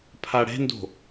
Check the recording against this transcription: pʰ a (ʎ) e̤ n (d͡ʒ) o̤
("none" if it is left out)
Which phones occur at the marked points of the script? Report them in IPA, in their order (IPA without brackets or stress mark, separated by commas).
ɽ, d